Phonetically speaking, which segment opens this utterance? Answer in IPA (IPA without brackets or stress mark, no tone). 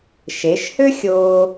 ʃ